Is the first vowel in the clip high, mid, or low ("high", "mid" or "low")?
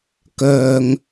mid